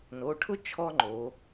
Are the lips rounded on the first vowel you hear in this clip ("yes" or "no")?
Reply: yes